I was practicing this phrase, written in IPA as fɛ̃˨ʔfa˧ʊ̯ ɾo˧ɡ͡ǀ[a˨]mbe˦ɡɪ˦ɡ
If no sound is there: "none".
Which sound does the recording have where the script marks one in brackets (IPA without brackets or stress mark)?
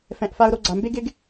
a˨